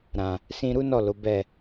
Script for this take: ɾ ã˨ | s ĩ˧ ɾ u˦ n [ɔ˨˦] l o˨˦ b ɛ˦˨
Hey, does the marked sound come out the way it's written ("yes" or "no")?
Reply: no